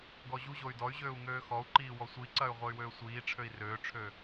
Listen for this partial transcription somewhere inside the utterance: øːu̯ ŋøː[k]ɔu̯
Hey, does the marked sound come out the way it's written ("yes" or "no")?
no